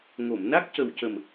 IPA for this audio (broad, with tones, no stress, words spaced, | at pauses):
ŋo˨˩˨mna˦˥k̚cə˨˩wcə˨˩m